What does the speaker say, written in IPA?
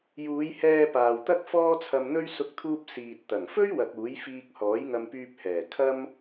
j uː˨˧ j h ɛː˧ p aː˨ w t̪ ɐ˥ k̚ f ɔː˥ t͡sʰ ɐ˧ m n̪ ɵ˥ ɥ s ʊ˥ k̚ t̪ʰ uː˥ p̚ s iː˨ t̚ t̪ ɐ˨˩ ŋ f ɵ˥ ɥ w ɐ˨ k̚ uː˨˥ j f iː˧ k̚ h ɔː˨˥ j ŋ ɐ˧ m p yː˧ p̚ h ɛː˨˩ kʰ ɐ˥ m

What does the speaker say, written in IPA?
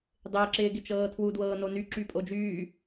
dˤ ɪː ǁ ɪː ɡ ɪ t͡ʃ ɤː tʰ w u d w ɤː n o n y ǁ y pʼ o d͡ʒ yː

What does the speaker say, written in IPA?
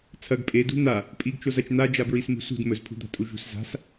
t͡sʰ ɐ ɡ pʼ e d ṳ n̪ a | pʼ i ɡ t͡ʃ o z ɐ t͡ʃ n̪ a d͡ʒ a b ɹ i s m ṳ s ṳ d m ɵ z pʰ ṳ d̪ a̤ tʼ u ʒ ṳ s z a̤ s

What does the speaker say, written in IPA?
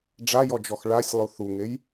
ɖ͡ʐ a j ɔ d͡ʒ ɔ x ɭ a sʲ lˠ u θ u ŋ e j

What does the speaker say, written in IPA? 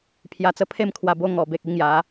pʰ j a˧ t͡s ə˦ pʰ e˥˧ m kʰ w a˧ b o˧ ŋ ɔ˨˩ b e˨ k̚ i˦ ŋ j a˨˦

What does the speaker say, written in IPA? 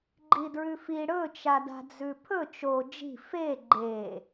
ɡ͡ǃ i d ɹ ʉ f i ɽ ɵ t͡ʃ a d a̤ d͡z ʉ pʰ ɵ t͡ʃ o d͡ʒ i̤ f e ɡ͡ǃ e

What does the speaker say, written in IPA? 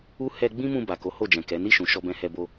u˦ h ɛ˧ ɡ͡b ĩ˦ m ũ˧ b a˨ k o˨˦ h o˦˨ d͡ʒ ɛ̃˨ k ɛ˨˦ n i˦˨ ʃ ũ˨ ʃ ɔ˧ b ɛ̃˧ h ɛ˧ b o˧

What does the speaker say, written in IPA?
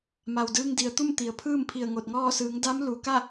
m a˩ w d ɯː˧ ŋ d i˩ ə̯ t̪ u˥˨ m t̪ i˩ ə̯ pʰ ɯː˥˨ m pʰ i˧˩ ə̯ ŋ o˧˩ t̚ ŋ ɔː˥˨ s ɯː˩˧ ŋ d a˧˥ m l u˩ k a˥˨

